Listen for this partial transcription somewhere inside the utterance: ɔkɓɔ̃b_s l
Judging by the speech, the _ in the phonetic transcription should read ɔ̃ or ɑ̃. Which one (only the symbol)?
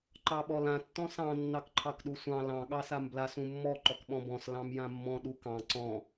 ɔ̃